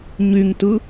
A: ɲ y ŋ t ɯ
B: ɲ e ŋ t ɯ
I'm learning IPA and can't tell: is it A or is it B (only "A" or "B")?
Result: A